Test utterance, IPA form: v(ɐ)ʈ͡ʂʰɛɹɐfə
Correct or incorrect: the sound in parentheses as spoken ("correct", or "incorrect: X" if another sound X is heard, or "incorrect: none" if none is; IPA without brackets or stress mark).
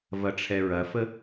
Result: correct